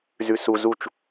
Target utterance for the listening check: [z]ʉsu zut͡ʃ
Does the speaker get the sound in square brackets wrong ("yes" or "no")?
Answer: no